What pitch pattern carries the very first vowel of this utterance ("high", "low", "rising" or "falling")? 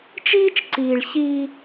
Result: high